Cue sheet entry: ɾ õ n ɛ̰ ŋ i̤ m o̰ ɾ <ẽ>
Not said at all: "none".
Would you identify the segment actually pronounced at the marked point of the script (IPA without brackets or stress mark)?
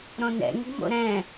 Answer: ɛ̃